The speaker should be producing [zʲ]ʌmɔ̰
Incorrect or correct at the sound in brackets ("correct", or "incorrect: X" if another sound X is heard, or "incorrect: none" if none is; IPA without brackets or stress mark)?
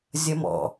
correct